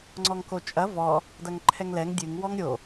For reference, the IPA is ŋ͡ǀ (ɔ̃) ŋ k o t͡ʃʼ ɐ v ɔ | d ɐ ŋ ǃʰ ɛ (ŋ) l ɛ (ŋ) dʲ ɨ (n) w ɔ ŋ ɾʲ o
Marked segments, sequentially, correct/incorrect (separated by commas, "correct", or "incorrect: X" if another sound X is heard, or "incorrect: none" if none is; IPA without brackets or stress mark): incorrect: ɔ, correct, correct, incorrect: ŋ